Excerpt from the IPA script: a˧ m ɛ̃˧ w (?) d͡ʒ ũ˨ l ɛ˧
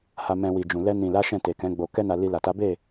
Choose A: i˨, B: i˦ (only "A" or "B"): A